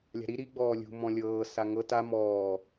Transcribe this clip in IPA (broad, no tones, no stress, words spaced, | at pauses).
lʲa̤ɾi ɾi ɡ͡bɔːlʲṳ mɔ̃lʲɤː saŋɤ ta mɔː